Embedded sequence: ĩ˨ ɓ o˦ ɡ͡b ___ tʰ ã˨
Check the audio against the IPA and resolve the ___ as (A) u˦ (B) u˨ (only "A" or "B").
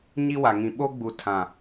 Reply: B